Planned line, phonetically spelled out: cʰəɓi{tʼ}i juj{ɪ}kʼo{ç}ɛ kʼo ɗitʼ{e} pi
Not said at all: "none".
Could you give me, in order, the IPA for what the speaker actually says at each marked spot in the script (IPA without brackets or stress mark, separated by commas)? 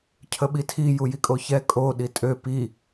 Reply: tʰ, i, ç, ø